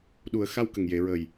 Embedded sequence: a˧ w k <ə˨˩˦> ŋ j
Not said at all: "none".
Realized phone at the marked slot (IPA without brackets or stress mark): ə˨˩